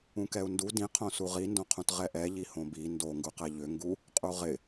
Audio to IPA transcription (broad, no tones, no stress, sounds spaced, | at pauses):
ũ k ɛ u̯ n d u d ĩ qʰ õ s u ʁ i n d õ qʰ ũ t ʁ ɛ ʔ ɛ ʎ i h õ b i n d o ŋ ɡ u q ɛ ʎ ʏ ŋ ɡ u | qʼ u ʁ ɪ